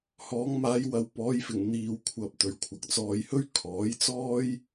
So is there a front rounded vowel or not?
no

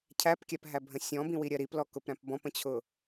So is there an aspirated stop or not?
yes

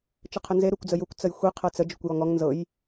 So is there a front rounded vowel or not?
no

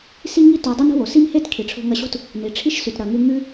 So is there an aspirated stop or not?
yes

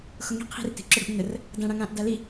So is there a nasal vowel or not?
yes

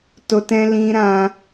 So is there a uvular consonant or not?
no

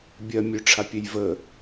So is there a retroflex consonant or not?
yes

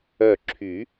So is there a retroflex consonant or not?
no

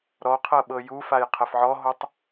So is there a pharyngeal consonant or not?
yes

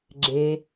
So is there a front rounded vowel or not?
no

